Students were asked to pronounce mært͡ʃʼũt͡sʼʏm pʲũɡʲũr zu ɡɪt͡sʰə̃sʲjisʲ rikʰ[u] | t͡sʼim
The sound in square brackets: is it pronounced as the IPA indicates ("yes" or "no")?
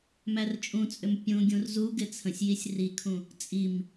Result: no